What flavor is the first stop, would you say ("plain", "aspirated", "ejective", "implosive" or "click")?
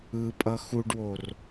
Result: ejective